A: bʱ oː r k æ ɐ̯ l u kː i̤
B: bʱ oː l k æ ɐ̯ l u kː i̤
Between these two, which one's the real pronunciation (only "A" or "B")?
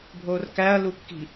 A